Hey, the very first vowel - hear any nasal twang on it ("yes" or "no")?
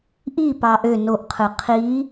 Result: no